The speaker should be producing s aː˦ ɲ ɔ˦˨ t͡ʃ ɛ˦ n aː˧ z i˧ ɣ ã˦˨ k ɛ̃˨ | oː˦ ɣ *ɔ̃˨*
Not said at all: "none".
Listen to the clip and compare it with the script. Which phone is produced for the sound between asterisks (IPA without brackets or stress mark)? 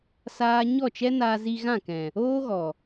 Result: ɔ˨